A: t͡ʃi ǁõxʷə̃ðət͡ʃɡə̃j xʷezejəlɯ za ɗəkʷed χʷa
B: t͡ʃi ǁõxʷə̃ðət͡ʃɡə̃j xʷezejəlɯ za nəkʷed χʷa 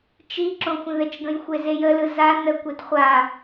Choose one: B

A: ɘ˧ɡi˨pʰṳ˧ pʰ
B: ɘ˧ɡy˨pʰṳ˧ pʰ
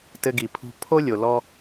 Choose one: A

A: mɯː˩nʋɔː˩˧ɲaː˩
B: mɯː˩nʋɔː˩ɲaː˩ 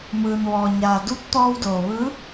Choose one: B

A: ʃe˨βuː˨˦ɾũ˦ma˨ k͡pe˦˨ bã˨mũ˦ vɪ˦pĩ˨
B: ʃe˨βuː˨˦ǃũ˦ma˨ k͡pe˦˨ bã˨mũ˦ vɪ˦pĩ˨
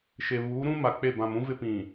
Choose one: A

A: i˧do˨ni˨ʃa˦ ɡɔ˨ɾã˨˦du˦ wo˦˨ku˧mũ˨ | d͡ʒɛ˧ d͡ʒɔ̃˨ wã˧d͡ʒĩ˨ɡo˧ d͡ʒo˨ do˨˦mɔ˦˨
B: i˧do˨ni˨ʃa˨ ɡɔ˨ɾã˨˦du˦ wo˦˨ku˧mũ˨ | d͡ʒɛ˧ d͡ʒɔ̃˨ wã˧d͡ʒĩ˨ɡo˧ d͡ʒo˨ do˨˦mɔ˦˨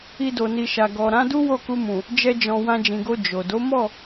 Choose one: B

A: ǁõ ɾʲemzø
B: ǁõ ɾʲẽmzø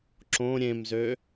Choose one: B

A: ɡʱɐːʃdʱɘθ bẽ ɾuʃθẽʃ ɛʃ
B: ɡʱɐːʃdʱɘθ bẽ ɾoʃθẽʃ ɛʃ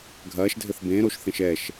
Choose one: B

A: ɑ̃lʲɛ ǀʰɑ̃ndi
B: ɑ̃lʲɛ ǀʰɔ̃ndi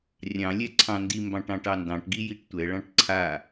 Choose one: A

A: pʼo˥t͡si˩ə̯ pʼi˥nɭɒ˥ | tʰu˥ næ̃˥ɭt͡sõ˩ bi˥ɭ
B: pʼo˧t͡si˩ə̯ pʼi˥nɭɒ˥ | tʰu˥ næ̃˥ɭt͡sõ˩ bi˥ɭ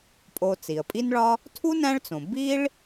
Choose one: B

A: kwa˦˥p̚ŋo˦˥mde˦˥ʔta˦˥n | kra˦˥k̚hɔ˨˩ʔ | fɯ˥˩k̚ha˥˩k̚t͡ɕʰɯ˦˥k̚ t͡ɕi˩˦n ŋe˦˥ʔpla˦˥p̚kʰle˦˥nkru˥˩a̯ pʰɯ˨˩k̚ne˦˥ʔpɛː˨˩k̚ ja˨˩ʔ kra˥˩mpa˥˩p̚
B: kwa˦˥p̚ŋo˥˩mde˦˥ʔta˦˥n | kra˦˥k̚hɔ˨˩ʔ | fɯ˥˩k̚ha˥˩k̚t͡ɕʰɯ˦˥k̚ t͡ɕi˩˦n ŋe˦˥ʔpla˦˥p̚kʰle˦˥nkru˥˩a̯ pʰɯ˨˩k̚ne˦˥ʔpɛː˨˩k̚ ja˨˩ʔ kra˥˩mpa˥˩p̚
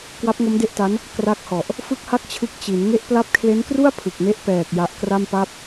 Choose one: A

